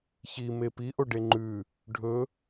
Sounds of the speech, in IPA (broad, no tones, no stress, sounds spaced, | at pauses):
ç i m e p i ʔ o ɖ e ŋ͡ǃ ʉ | ɖʱ ɵ